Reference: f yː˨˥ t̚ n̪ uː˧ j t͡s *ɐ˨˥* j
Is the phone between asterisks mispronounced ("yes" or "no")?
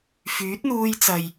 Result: yes